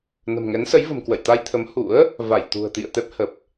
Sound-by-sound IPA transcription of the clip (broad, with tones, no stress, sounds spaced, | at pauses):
n ə̤˨˩ m ŋ ɛ˨˦ n s ə˨˦ j v ə̤˨˩ m k w ə̰˧˨ j t̪ a˧ j t̪ʰ ə˨˦ m h ṵ˧˥ ə̯ | v a˧˩ j t̪ ṳ˨˩ ə̯ t̪ ḭ˧˨ ə̯ t̪ ɛ˦˥ p̚ h ə˨˩ p̚